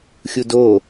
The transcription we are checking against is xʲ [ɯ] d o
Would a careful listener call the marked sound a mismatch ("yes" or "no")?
yes